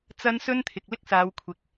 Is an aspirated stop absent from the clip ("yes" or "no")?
no